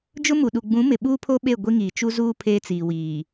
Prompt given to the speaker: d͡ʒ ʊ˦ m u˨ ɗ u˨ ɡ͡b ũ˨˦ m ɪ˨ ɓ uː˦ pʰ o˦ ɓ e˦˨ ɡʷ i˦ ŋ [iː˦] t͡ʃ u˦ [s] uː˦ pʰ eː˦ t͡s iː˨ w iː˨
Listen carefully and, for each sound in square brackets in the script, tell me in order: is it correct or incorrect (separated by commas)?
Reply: incorrect, incorrect